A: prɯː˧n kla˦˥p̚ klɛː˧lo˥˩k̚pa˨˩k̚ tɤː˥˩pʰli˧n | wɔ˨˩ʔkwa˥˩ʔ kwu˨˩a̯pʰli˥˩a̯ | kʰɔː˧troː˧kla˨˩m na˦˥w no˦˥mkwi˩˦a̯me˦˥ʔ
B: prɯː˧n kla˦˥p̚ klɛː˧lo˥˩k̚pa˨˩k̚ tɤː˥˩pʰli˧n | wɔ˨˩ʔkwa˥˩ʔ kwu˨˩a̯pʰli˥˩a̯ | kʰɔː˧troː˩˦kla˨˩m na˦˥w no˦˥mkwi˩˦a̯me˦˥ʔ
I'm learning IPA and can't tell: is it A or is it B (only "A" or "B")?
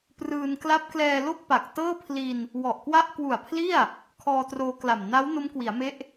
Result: A